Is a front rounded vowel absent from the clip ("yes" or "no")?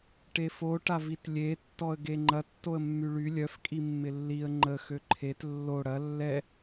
no